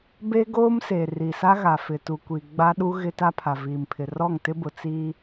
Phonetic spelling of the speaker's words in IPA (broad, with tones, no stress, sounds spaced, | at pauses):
b e˦ ɡ oː˦ m s e˨ r i˨ s a˦ ɣ a˨ f ɪ˨ t u˨ kʷ i˨ ɡ͡b a˦ ɗ u˦ ɣ ɪ˦ t a˦ pʰ a˨ v iː˨ m pʰ ɪ˨ r ɔ˦˨ ŋ t ɪ˦ b ʊ˨ t͡s iː˦